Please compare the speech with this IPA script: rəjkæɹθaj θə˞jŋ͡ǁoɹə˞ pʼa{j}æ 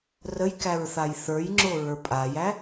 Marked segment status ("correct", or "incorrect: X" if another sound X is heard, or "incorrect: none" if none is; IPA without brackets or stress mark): correct